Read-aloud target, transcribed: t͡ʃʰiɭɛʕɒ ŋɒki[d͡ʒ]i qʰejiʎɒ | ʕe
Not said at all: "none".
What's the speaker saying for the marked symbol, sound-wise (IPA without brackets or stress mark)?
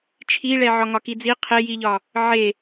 d͡z